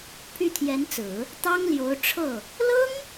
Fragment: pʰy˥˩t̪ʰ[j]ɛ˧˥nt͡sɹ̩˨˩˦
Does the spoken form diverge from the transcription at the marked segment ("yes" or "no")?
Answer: no